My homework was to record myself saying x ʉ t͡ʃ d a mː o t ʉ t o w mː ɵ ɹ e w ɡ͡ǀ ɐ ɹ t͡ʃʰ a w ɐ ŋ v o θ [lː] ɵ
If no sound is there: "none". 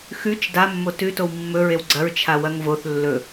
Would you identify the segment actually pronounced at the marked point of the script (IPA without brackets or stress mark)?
lː